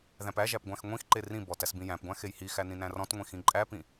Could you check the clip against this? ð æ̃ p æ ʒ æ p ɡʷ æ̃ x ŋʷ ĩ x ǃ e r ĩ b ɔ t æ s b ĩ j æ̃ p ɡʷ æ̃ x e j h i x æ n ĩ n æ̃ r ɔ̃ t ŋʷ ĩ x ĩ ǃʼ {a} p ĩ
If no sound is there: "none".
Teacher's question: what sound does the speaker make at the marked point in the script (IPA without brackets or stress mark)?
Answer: æ